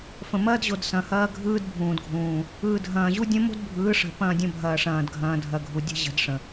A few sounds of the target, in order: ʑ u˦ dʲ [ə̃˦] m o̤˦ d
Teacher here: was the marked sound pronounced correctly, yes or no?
yes